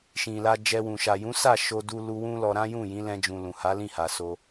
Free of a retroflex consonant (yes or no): yes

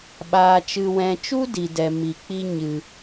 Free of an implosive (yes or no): no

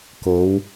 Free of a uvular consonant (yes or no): yes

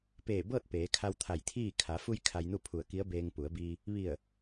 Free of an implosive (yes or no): yes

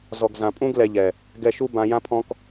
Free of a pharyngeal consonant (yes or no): yes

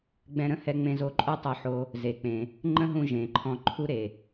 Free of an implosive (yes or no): yes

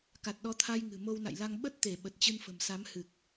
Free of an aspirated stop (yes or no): no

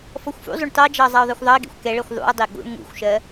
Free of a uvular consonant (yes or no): yes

